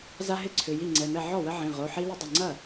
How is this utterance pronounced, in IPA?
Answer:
za˦ɦɪ˥˩ǀʰʏ˩˧˩ ji˥˩ŋ͡ǀɛ˩˧˩mɛ˥˩ ʕɔ˥˩wə˦ʕĩ˩˧˩ ʁo˩˧˩ħi˦ lə˦dˤɪ˩˧˩ŋ͡ǀɐ˥˩

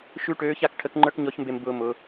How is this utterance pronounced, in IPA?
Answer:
ʃʉ˥ʈøː˧˥ça˥k ʈʰə˧˥kŋ͡ǃə˞˥kɲɔ˧˥çmbe˧m bʊː˧mʊ˩˧

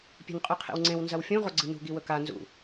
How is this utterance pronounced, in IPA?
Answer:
pʲe̤nqʼʉqʰḛwŋ͡ǀẽw nzɐwfʲũ ʁoɡ͡ǀɨnṳ ɡiwɵka nzṵ

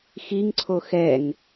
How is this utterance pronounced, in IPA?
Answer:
xiŋǀʰo xɛŋ

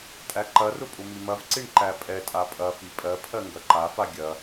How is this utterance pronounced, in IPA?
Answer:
tʼæǃɐrʊ pʼʊmimɐvǀiɳ ǃæpʼɛtʼa pʼɐfi pʼɜpʰɜ ŋɡɐǃafa ɡʲɐ

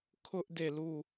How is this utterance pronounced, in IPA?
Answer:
kʰʊ˦ʔ de˦˨lu˦˨

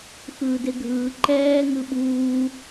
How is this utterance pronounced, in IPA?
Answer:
xɯːdeɡʱɯː ǃɛː ŋɯɓuː

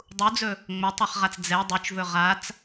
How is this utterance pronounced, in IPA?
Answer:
dˤud͡zɵ | ŋ͡mɵtˤɛχʁat͡s d͡zɛ dˤut͡ʃvɵ ʁat͡s

